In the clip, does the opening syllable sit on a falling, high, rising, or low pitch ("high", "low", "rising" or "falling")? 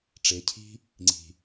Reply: rising